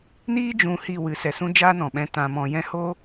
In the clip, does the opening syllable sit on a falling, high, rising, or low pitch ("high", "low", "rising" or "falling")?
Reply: high